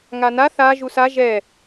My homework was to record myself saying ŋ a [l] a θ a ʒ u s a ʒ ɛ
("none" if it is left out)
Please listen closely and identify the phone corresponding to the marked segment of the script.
n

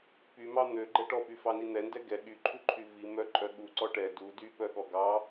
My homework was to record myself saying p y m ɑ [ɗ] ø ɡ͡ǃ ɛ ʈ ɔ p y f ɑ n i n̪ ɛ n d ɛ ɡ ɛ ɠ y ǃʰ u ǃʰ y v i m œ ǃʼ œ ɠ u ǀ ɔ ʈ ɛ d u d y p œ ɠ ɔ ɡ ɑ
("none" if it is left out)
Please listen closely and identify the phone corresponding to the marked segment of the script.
n̪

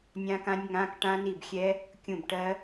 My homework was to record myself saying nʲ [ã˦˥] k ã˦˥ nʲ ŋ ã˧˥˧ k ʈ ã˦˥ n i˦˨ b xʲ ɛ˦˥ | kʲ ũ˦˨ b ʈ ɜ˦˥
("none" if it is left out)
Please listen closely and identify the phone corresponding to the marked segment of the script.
ã˦˥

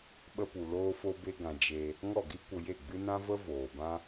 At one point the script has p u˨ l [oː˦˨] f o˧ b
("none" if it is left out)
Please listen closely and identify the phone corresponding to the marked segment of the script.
oː˧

